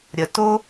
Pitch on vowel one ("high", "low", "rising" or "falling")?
low